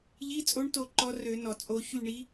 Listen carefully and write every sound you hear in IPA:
ʎ i˧˥˧ t͡sʼ o˧˥ ɳ t o˦˨ ǃ ɔ˧˥ r ø˨˩˦ n ɔ˩ t͡sʼ o˨˩˦ ç y˦˨ ɳ i˧˥

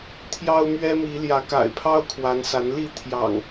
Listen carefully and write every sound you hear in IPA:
t̪ʰ j ɑ˦ ʊ̯ m ɥ ɛ˦ m i˨˦ l j ä˨˦ k a̰˨˩ ɪ̯ pʰ ɑ˦ ʊ̯ kʰ w a˨˦ n s a˨˦ n l i˥˨ t̪ʰ j ɑ̰˨˩ ŋ

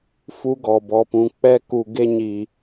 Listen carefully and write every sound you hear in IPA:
f u˦ ɡ ɔ˨ b ɔ˨ p ũ˨ k͡p ɛ˦ k u˨ ɡ e˧ ɲ i˨

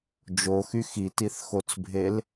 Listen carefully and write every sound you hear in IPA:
d͡ʒ o x y x i t i θ x o t͡s bʱ e l

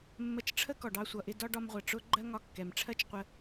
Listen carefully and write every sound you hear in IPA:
mː ə˧ t͡ʃ ʈ͡ʂʰ ə˥ k ɔ˩ ɖ ɑ˧ sʷ ʌ˩ ʔ ɪ˧ d ɒ˥ ɖ ɒ˧ m ʁʷ ɜ˩ ʈ͡ʂ ʊ˥ ɡ͡ǃ ɜ˥ ŋ ɒ˧ kː ɛ˩ m ʈ͡ʂʰ ɜ˥ t͡ʃ qʷ ə˧

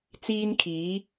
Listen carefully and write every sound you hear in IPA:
t͡s iː˥ n kʰ iː˨˥

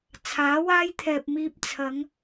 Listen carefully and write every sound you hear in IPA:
t͡sʰ aː˨˥ w aː˥ j t̪ʰ ɛː˨ p̚ m iː˧ p̚ t͡sʰ ɐ˨˧ ŋ

